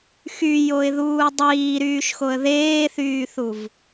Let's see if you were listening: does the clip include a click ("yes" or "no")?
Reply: no